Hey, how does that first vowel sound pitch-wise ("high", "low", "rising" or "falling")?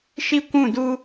high